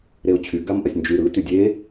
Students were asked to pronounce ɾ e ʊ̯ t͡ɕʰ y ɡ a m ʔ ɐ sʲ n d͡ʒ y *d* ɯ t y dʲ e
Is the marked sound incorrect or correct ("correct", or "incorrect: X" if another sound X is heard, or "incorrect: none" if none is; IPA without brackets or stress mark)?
incorrect: ɾ